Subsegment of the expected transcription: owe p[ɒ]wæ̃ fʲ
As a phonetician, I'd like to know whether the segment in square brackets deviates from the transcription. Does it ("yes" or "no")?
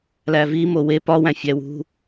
no